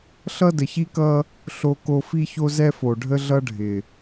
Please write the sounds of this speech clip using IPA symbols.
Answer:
ɬ ʌ˦ d ə˨ ç i˦ k ʌ˦ | ɬ o˦ k o˦ f i˦ ç o˦ z ɛ˦ f o˨ ɖʱ ə˦ ɮ ʌ˦ ɖʱ ɪ˨

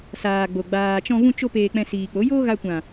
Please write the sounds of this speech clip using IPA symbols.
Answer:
s aː˨ ɡ͡b o˨ ɡ͡b aː˨ t͡ʃ ɔ̃˧ v ũ˧ t͡ʃ o˧ p eː˧ k͡p ɛ̃˧ s iː˨ k͡p o˨˦ j oː˦ ɣ a˧ kʷ ã˨

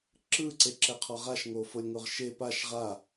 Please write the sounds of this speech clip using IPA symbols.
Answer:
ǁ ɯ ǀ e ǁ ɛ qʰ ɔ ʁ a ʃ ŋ o f o lʲ ŋ o ʁ ʃ e p a ʃ ʁ a

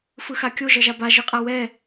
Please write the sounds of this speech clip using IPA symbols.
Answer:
f ɯ x a kʲ o ʒ ʌ ʒ a b a ʒ ɯ qʼ a w ɛ

